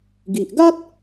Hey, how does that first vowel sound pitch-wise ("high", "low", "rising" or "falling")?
low